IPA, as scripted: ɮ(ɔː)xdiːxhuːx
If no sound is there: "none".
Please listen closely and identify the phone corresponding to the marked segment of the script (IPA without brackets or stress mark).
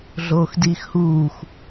oː